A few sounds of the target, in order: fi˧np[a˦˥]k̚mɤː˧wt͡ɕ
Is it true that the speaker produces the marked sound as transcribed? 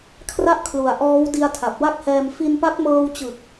yes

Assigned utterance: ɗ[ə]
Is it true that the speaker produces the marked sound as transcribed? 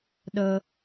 yes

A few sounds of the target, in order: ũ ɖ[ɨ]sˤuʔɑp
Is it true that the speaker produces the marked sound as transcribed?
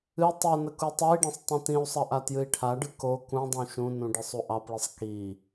yes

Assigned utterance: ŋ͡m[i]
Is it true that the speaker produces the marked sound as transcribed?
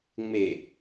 no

